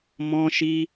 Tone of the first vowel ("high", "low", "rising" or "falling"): high